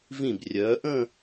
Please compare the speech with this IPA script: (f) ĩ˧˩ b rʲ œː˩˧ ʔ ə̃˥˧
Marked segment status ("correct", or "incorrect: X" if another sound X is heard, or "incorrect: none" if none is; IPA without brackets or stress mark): incorrect: v